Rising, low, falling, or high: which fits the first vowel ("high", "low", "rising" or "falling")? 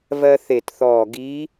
high